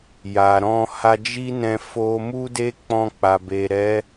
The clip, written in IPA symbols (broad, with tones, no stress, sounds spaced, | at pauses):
j a˨ ɾ ɔ̃˧ h a˧ d͡ʒ i˦ n ɛ̃˧ f o˧ m u˦ d e˦ k͡p ɔ̃˧ k͡p a˨ b e˨ ɾ ɛ˨˦